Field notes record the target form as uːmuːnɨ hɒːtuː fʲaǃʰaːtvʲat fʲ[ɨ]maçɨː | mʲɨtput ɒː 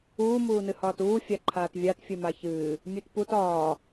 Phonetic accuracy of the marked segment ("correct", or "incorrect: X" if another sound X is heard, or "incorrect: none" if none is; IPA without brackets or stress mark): correct